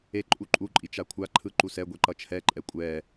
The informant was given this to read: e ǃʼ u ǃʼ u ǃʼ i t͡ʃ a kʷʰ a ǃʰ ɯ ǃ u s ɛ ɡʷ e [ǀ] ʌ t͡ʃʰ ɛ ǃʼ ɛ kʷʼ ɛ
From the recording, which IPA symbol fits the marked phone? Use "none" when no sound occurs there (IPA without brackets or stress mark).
ǃ